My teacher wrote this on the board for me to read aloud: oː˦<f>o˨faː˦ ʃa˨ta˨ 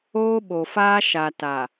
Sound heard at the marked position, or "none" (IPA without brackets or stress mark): ɓ